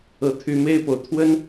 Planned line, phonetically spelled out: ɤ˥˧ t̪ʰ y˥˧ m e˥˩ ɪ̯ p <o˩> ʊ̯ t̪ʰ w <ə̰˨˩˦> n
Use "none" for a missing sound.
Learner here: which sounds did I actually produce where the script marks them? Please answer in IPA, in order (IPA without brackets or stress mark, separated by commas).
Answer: o˩, ə˥